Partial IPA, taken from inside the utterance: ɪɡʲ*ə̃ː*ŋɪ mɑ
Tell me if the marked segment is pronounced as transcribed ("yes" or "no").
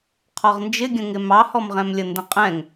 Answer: no